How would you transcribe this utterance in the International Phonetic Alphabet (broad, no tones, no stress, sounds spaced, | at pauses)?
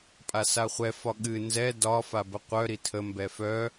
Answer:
pʼ a s a χʷ ɛ f ɒ ɠ ɨ n z ɛ d ɒ f a b ə qʷ œ ɾ i tʰ ə m b ɛ f œ